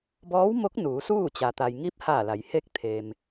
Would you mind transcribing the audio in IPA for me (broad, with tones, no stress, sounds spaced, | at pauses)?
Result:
b ɔː˧˥ w m o˧˥ k̚ n uː˩˧ s uː˥˨ t͡ɕ a˩ t̪ a˩ j ŋ i˧˥ p̚ h a˧˩ l a˩˧ j h e˥˨ k̚ t̪ʰ e˩ m